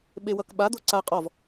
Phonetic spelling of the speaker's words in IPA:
ɓewʌkɓa d̪oǀa qʼɔv

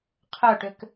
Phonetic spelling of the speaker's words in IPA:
qʰœʈʏk

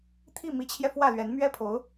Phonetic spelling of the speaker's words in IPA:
t̪ʰi˥˩mi˧˥t͡ɕʰjɛ˧ fwä˥˩lɥɛ˧˥n mɥɛ˥pʰo˧˥ʊ̯

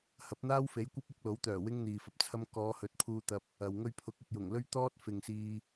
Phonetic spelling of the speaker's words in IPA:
hɐ˨˥p̚n̪aː˥wfe˨˥j kʷɐ˥p̚ɐ˥k̚lo˨˥wt̪œː˨˩ wɪ˥ŋn̪iː˨fɐ˧p̚t͡sʰɐ˥m kɔː˨˧hɵ˨˥t̚pʰuː˧t̪ɐ˧p̚ | ɐ˨w ŋɵ˧ɥpʰʊ˨˥k̚ɐ˨k̚ jʊ˨˩ŋlɵ˥ɥt̪ɔː˥t̚ fɪ˨ŋsiː˧

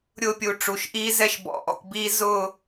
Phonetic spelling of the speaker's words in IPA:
ɾʲʊː˥pʲu˧ʈ͡ʂu˧˩ʃʔiː˥ zɛ˥˧ʃbɔ̰˧˩ʔɔ̰˧˩kʷ biː˧ zʊː˥˧

